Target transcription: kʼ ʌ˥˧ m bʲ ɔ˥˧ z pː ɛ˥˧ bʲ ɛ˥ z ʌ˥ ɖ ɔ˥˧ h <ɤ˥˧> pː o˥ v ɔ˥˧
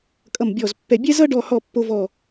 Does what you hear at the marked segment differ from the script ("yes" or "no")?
yes